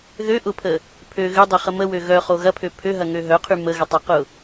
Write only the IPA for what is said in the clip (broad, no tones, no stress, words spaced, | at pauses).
ðø ʔʊpʰə | pʰø ɣʏdˤʏχə məwø ɣœχo ɣɐpʰø pʰøɦɐŋø ɦœqʰy məɣətˤœqʊ